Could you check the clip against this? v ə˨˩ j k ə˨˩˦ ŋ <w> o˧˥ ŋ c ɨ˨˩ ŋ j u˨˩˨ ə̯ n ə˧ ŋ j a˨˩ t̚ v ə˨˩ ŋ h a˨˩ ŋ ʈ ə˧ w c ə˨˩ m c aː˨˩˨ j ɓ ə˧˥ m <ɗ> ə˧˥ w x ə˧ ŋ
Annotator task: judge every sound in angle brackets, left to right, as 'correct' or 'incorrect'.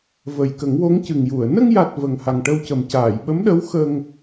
correct, correct

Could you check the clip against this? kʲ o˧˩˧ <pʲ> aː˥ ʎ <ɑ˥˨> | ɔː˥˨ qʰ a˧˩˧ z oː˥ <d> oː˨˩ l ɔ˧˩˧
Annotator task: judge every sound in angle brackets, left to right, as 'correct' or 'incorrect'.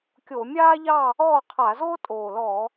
incorrect: mʲ, correct, incorrect: tʼ

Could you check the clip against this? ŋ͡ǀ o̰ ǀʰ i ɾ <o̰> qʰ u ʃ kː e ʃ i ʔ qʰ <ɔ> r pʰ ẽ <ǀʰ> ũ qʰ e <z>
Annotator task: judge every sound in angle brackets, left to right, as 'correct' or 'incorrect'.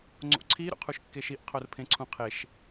correct, incorrect: o, correct, incorrect: ʃ

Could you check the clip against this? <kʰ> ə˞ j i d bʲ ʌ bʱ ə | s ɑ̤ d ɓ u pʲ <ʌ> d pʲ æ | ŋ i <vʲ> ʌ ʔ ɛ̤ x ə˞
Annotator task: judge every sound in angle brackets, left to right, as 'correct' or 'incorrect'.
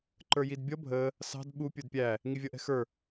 incorrect: ǃ, incorrect: ə˞, correct

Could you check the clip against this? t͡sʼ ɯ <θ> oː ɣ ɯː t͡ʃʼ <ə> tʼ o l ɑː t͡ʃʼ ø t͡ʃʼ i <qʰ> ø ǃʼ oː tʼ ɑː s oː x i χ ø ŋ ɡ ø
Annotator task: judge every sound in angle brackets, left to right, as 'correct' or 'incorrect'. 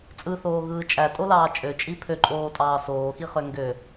correct, incorrect: æ, incorrect: pʰ

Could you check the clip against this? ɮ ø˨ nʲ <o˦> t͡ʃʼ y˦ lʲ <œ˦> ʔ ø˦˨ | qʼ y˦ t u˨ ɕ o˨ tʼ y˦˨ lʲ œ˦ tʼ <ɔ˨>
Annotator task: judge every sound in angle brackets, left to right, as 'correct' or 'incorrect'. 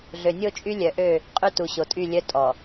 correct, incorrect: œ˨, correct

